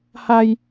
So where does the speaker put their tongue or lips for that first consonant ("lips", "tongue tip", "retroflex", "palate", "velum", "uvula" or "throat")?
throat